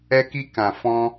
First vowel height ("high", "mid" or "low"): mid